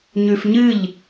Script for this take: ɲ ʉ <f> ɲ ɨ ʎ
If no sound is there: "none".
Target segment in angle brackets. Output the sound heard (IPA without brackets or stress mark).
f